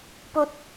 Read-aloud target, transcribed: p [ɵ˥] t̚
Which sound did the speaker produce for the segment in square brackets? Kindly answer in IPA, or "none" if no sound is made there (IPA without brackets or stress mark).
ɵ˧